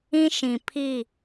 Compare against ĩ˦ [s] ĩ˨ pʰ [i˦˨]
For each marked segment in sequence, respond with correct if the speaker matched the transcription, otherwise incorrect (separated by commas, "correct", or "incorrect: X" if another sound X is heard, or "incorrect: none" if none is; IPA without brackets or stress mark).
incorrect: ʃ, correct